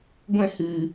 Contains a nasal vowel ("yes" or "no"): yes